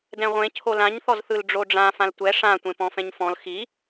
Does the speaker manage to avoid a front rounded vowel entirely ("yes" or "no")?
yes